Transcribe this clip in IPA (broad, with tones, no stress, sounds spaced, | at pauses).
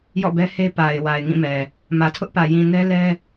j ɔ̰˦˨ b ɛ˦ h e˦ p a˨ ɪ̯ w a˨ ɪ̯ ŋ ĩ˦˨ m ɛ˨ | m ä˨ tʰ ʊ˦ ʔ p ä˨ j ĩ˨ n ɛ˦ l ɛ˦